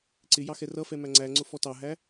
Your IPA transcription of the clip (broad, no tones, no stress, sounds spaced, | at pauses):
ǀ ɪ j ɑ x ɛ r ʌ f ɛ m æ ŋ͡ǀ æ ŋ͡ǀ ʊ f ɔ t ɑ ɦ æ